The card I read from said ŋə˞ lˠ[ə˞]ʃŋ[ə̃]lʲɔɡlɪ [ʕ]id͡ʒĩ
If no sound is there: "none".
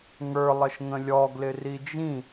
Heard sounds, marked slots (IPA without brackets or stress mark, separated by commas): ə, ə̃, r